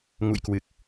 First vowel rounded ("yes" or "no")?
yes